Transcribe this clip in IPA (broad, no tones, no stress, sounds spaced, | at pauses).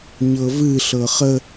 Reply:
ɲ ɤ v ɨ ɬ ɤ χ ə